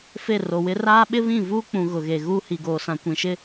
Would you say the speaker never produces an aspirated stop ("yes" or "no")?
yes